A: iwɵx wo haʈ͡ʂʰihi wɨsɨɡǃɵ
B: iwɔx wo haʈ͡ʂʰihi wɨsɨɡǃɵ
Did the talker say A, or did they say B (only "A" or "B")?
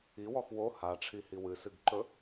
B